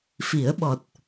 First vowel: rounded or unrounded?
unrounded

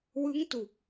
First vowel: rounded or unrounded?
unrounded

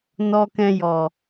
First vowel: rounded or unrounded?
rounded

